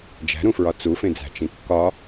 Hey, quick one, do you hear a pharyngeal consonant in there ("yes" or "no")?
no